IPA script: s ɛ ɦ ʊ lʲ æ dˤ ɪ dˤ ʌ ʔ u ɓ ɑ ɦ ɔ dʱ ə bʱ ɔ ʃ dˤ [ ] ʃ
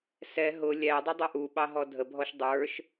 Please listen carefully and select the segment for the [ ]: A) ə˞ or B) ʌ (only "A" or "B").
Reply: A